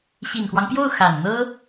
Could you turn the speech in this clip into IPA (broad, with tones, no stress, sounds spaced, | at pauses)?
ɕ i˨˩ n k w ɑ˦ ŋ p j o˥˩ ʊ̯ x a˨˩ n n̪ ɤ˥